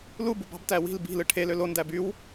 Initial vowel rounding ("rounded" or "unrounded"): rounded